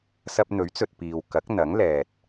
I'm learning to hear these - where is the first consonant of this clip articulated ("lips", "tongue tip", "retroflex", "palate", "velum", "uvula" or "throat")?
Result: tongue tip